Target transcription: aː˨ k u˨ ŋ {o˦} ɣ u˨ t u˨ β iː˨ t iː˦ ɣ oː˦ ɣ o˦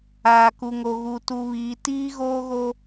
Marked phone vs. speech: incorrect: o˨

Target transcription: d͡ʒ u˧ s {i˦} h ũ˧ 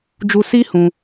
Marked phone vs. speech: correct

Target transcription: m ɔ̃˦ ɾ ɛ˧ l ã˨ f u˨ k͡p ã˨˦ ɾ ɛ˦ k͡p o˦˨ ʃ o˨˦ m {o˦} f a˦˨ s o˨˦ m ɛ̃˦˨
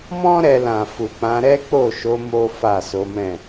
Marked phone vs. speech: correct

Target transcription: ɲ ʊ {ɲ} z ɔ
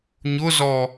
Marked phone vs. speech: incorrect: none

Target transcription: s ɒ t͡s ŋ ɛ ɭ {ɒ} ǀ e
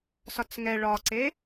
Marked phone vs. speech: correct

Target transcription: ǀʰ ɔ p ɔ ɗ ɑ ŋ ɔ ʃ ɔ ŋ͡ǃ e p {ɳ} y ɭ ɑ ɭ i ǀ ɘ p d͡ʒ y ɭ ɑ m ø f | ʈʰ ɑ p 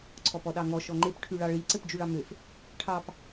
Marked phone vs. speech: incorrect: ʈʰ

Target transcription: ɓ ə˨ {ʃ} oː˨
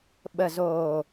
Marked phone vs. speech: incorrect: z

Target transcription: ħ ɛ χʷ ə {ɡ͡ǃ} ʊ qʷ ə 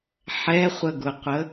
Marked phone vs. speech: incorrect: ɡ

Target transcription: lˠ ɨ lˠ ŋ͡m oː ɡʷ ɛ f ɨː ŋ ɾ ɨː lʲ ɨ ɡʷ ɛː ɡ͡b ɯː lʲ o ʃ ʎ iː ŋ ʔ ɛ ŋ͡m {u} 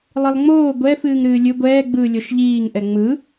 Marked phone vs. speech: incorrect: ɯ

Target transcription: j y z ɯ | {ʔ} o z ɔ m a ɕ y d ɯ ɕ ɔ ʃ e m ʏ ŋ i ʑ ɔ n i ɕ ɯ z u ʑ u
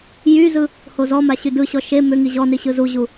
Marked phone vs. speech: incorrect: h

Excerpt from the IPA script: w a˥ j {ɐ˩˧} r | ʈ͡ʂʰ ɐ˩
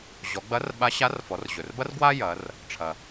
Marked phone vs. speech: correct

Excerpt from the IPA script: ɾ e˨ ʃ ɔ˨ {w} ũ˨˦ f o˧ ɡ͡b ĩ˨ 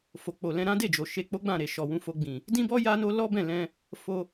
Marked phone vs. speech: correct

